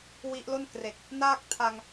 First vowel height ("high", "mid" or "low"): high